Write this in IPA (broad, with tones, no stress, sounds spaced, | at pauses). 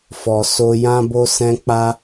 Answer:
f ɔ˨ s o˧ j ã˦ b o˧ s ɛ̃˧ k͡p a˧